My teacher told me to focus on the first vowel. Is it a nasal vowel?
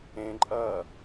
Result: yes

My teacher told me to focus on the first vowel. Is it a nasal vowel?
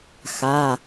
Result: no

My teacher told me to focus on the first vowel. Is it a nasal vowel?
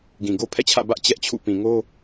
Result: yes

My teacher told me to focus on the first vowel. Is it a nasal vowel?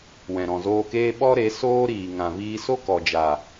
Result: yes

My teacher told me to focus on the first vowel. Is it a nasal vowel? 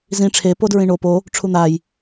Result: yes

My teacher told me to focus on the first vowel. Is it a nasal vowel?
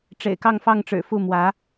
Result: no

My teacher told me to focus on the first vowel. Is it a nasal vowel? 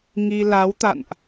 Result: no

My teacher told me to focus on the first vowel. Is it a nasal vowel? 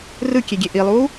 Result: no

